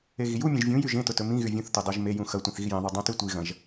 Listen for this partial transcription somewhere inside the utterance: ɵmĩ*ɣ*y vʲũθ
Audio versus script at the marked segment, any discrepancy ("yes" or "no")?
no